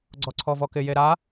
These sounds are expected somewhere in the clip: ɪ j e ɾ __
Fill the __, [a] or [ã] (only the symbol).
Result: a